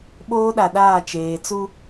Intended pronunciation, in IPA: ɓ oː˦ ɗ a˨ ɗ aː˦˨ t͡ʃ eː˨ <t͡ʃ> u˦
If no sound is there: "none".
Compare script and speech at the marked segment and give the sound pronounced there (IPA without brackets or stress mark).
t͡s